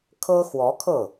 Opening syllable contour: high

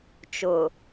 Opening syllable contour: low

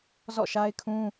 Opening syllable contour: falling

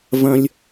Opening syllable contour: high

